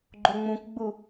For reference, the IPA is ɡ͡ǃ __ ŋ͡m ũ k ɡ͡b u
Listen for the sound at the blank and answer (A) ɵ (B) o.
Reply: B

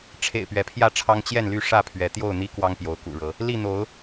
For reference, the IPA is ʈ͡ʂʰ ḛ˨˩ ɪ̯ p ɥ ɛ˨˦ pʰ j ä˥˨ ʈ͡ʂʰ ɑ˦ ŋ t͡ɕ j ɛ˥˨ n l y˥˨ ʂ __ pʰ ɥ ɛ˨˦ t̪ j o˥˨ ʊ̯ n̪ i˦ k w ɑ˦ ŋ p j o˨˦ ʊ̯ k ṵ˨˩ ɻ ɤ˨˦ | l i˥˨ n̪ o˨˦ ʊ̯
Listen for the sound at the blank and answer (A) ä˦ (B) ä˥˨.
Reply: B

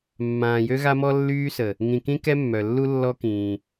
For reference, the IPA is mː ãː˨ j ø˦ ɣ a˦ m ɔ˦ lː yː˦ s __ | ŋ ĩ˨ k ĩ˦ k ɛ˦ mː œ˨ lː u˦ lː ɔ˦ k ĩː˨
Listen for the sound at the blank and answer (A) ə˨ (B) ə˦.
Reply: A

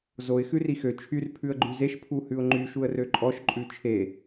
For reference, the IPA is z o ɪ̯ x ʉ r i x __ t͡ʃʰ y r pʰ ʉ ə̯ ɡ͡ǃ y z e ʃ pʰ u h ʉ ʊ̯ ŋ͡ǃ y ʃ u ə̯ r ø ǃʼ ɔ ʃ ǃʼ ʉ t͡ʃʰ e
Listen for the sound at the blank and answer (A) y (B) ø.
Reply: B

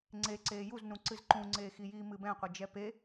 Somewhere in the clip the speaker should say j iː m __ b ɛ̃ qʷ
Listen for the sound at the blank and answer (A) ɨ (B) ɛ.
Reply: A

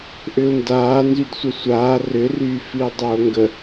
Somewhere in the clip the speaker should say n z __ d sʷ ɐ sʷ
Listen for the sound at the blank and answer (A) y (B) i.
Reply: A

